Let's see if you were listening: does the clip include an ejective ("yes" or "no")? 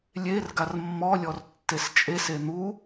yes